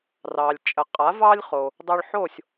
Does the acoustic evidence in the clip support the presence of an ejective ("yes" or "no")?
yes